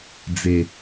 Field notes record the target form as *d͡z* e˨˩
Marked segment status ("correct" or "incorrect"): correct